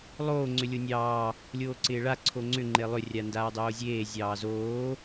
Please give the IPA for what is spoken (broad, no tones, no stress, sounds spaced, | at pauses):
lˠ oː ŋ͡ǀ ʏ lʲ o nʲ ɑː | lʲ oː ǀ ɪː ɭ a ǀʰ o ŋ͡ǀ ʏ ŋ͡ǃ e lˠ ʏ rʲ a n d aː dˤ oː zʲ eː zʲ ɑː z oː